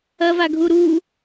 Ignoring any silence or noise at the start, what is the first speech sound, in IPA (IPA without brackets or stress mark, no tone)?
ɐ